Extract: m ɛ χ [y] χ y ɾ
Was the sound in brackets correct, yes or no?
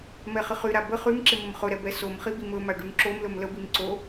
no